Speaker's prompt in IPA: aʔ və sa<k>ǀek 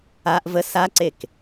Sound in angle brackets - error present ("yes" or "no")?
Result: yes